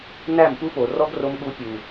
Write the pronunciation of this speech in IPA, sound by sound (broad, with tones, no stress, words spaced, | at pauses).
næ˦˨mpu˦po˨ rɔ˦ɡ ro˦mɠu˦ pʲu˨